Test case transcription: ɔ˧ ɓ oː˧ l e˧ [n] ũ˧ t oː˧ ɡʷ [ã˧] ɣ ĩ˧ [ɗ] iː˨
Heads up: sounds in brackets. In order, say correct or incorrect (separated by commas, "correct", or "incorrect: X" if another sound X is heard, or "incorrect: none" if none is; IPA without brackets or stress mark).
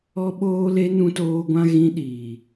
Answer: correct, correct, correct